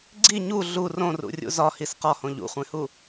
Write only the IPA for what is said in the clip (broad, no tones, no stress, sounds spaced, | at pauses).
ɡ͡ǀ i ɲ u ɮ u r õ r ṵ rʲ ṵ z ɒ h i s q ɒ h õ ʎ ṵ χʷ ẽ h u